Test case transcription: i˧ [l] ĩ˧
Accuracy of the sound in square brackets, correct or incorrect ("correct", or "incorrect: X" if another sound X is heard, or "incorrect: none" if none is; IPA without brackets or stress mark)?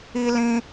correct